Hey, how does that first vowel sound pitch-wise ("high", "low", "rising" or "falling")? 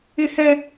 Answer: high